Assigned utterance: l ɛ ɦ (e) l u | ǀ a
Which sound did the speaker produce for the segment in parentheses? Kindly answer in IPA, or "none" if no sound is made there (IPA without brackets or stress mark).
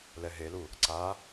e